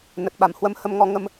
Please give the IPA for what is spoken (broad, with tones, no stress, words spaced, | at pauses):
nə˨˩t̚ɓa˧˩m hwə˧m hə˧mŋɔ˧ ŋə˧m